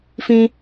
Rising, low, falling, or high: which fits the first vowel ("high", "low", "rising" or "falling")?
high